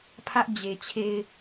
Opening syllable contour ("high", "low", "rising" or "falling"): high